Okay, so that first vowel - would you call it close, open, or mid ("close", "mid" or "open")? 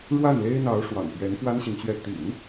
open